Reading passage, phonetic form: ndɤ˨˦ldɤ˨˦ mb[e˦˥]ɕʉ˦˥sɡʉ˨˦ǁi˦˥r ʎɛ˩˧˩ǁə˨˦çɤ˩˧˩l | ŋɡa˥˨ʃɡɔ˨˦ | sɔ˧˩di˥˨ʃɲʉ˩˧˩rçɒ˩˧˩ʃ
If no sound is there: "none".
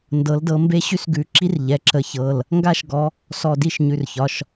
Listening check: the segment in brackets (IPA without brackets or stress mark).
e˦˥